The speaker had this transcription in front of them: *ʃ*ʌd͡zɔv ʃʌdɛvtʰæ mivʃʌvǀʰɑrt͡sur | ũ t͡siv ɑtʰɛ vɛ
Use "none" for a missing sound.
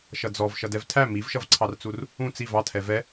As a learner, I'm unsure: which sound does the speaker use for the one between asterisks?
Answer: ʃ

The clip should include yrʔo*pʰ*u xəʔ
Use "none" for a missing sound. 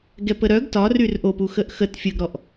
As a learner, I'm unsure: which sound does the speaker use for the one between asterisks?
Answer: p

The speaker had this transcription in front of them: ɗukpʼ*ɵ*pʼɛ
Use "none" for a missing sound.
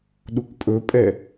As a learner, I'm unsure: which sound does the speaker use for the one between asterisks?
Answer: ɵ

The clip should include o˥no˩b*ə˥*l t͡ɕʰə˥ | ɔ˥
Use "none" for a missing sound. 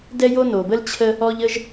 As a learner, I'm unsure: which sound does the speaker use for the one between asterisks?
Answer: ə˥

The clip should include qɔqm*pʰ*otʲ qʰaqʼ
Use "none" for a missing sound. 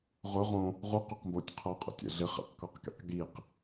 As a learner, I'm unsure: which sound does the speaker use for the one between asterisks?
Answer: b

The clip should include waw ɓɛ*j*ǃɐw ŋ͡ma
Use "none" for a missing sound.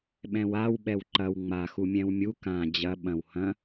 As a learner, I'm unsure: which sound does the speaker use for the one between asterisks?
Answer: w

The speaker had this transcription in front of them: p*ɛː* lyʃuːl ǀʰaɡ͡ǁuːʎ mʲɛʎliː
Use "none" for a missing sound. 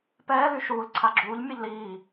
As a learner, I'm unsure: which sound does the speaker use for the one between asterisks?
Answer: ɛː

